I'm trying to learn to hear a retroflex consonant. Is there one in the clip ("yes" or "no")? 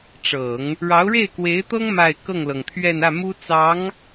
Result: yes